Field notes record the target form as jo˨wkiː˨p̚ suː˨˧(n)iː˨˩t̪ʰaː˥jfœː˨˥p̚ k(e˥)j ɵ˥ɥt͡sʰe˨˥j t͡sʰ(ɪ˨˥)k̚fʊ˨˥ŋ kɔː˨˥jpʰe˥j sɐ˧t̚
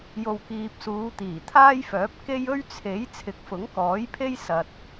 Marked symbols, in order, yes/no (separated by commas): no, yes, yes